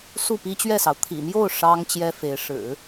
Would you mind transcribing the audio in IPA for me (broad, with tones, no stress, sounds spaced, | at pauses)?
s u˥˩ p i˥ t͡ɕ ɥ ɛ˥˩ s ɑ˩ ʊ̯ t̪ʰ ḭ˨˩ m j o˥˩ ʊ̯ ʂ ɑ˥ ŋ t͡ɕ j ɛ˥ f e˧˥ ɪ̯ ʂ ɻ̩˨˩˦